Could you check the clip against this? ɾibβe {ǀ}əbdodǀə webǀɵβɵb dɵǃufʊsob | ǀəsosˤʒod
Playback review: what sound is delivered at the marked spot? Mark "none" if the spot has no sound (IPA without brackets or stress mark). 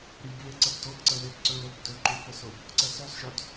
ǀ